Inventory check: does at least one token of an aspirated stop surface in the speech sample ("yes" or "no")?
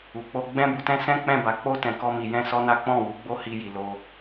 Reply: no